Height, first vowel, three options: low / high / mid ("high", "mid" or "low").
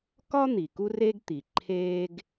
low